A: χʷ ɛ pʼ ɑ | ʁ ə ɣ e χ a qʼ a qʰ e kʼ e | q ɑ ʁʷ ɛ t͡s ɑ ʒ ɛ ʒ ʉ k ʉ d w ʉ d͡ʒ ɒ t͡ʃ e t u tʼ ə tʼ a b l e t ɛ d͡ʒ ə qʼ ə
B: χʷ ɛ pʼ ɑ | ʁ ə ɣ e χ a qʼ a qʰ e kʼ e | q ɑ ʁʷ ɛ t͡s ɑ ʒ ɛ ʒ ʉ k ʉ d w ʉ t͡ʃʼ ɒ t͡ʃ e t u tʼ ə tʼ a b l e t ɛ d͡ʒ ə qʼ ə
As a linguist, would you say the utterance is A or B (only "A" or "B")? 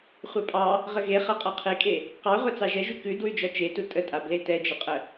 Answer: A